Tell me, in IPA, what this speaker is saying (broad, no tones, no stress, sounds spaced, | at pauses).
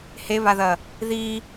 h e β a ð ɐ | ð i